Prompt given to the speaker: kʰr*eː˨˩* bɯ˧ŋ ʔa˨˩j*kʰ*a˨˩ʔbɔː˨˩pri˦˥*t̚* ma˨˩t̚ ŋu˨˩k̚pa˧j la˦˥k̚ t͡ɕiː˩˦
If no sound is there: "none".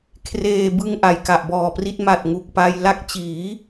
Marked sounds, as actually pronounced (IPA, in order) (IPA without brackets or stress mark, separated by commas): eː˧, k, t̚